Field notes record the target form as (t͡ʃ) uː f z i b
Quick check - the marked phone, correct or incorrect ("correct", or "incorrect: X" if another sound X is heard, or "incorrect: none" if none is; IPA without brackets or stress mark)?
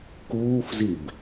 incorrect: k